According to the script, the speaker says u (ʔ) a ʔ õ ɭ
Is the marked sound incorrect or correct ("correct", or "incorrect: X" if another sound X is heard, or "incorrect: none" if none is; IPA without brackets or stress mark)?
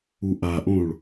correct